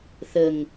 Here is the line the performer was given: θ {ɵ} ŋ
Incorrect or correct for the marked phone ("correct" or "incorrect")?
incorrect